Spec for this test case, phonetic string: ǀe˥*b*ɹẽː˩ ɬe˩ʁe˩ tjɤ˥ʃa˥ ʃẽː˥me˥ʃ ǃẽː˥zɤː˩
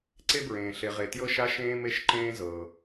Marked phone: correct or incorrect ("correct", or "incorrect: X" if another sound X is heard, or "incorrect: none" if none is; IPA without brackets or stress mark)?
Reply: correct